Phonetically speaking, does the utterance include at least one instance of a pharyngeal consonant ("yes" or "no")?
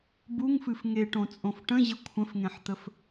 yes